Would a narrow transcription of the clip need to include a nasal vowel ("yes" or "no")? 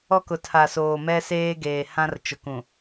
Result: yes